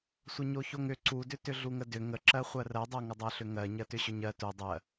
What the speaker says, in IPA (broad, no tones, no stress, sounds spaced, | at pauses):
sʷ ə ɲ o ç o ŋ ʏ ǀ u d ʏ t ʏ ɮ u ŋ ə d ʏ ŋ ə ǁ ɜ χʷ ɜ r ɜ dˤ ɜ ŋ ə dˤ ɜ ɬ ʏ ŋ ɜ ɲ ɜ t ʏ ɕ ʏ ɲ ɜ t u dˤ ɜ